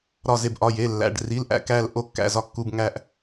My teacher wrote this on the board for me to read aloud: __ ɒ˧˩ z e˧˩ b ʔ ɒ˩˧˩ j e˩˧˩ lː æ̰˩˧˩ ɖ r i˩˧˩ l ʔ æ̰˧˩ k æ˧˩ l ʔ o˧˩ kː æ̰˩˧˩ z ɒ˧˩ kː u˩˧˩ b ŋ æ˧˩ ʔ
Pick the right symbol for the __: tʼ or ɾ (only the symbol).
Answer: ɾ